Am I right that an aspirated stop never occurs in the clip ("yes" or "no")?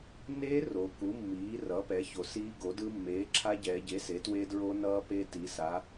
no